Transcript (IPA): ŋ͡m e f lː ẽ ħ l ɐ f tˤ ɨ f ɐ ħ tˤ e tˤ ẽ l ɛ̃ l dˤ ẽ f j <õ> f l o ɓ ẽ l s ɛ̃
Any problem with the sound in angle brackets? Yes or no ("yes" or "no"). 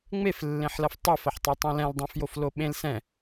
yes